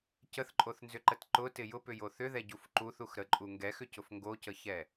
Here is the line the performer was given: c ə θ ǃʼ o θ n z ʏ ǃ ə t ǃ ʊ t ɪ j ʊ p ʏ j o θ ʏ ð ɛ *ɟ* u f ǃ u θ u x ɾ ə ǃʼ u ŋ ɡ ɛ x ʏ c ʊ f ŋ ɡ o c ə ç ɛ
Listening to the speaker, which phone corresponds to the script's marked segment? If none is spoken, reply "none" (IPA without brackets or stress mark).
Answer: ɟ